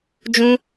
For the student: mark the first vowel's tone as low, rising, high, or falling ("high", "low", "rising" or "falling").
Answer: high